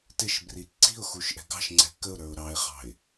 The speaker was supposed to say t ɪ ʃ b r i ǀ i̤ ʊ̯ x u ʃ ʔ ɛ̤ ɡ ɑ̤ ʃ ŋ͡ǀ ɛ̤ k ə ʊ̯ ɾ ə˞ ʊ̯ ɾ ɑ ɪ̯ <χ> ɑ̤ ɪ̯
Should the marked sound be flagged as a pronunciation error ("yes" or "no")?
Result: no